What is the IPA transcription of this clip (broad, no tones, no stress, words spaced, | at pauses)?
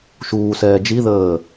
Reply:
ʃuːsɛː d͡ʒiðəː